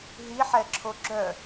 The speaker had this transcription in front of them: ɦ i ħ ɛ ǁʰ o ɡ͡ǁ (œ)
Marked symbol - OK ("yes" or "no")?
yes